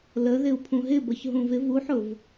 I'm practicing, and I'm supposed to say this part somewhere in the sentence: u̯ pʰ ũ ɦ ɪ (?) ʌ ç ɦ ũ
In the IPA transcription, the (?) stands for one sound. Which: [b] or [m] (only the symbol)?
b